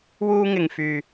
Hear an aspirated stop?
no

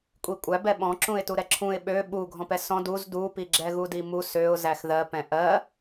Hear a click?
yes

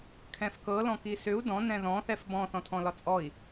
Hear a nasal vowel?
yes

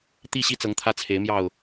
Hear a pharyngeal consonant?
no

